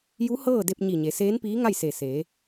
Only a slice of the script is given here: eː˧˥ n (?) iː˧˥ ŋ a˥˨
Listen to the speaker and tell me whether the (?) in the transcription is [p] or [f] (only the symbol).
p